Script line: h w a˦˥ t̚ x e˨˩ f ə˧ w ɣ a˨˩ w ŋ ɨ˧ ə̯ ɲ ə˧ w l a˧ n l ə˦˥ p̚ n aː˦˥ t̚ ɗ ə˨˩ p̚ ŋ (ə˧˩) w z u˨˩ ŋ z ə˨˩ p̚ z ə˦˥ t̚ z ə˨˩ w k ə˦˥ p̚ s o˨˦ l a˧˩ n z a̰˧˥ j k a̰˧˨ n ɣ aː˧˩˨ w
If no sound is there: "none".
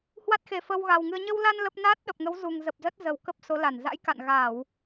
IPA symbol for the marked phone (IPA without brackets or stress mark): ə˨˦